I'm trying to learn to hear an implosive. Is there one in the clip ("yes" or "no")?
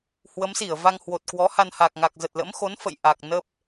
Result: no